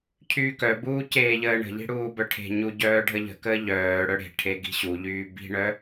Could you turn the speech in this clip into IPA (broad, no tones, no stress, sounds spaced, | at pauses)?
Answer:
cʰ yː k œ b uː c eː ʎ əː ɳ ə̤ ʎ i̤ ɽ uː b œ ʈʰ e̤ ɲ u ɟ œː ɖʱ ə ʎ ə̤ k əː ʎ œː ɽ œ ɽ e̤ ʈʰ e ɡ i̤ ɕ u ʎ yː b i̤ ɳ œ